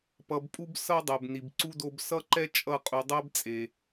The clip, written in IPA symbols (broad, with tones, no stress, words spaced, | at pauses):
pʌ˨bpʼu˧bsʌ˧ dˤɛ˨bni˨bǀu˦ do˧bsʌ˦ǃɛ˦ t͡ʃʼʌ˧qʼu˨dˤɛ˦b t͡sʼe˨